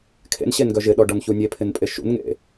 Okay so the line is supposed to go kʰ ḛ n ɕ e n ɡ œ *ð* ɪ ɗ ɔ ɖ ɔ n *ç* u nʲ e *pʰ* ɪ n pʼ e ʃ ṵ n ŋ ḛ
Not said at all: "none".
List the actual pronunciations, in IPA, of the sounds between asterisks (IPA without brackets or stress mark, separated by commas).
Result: ʒ, ç, pʰ